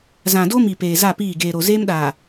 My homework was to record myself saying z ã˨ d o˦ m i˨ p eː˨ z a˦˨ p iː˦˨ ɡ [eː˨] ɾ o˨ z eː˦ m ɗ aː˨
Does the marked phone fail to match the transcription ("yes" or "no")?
no